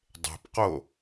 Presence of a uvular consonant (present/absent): present